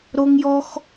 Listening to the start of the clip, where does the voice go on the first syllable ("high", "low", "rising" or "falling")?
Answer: high